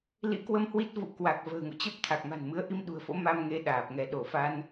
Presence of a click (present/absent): absent